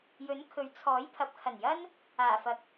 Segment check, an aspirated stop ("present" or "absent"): present